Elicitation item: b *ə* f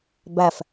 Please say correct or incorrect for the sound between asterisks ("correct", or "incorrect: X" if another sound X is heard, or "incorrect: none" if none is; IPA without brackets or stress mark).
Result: incorrect: æ